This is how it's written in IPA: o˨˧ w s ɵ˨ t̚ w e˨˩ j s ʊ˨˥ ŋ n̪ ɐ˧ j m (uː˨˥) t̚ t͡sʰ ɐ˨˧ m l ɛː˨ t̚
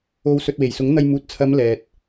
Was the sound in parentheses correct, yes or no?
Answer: no